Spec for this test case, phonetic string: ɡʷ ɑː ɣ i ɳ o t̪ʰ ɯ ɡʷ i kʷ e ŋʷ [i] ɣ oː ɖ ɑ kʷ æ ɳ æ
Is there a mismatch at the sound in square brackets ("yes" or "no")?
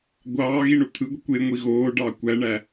no